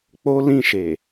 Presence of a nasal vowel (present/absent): present